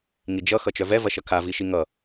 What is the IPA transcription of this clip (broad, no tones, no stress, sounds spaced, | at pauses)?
ŋ i d͡ʒ ʌ x ʌ t͡ʃ œ v ɛ v ɐ ʃ ʌ kʰ a v i ʃ i ŋ ʌ